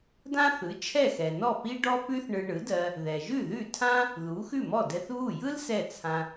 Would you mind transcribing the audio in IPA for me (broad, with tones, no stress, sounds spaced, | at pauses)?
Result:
d ã˥ θ ɯ˩˥ t͡ʃʰ ɛ˥˩ x ɛ˩ n ɔ˥˩ p i˥ ɖ ɔ˥ p ʉ˥ θ ɳ ɯ˧ ɳ ɯ˩˥ d ɜ˧ | ð ɛ˩ ʒ ʉ˥˩ ð ʉ˥˩ tʰ ã˥ | ð u˩˥ x ʉ˥˩ m ɔ˥˩ d ɛ˧ θ β u˥˩ j ɯ˥ l s ɛ˥˩ t͡sʰ ã˧